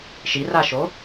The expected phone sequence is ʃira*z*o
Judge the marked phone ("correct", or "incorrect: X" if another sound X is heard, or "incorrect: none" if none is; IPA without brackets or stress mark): incorrect: ʃ